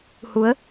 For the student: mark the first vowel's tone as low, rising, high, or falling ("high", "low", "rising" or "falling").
rising